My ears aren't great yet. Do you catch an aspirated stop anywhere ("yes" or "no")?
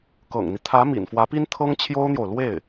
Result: yes